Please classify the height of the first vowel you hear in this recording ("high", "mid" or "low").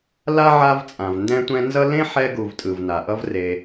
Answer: low